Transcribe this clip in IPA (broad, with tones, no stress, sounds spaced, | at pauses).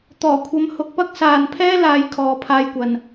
t̪ ɔː˨˩ kʷʰ ɐ˨˧ m h ʊ˨˥ k̚ p ɐ˥ k̚ s aː˨ n pʰ ɛː˥ l aː˨˧ j kʰ ɔː˨˧ pʰ aː˧ j kʷ ɐ˨ n